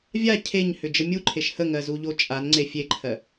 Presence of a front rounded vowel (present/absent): present